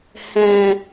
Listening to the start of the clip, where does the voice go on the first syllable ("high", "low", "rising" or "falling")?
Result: low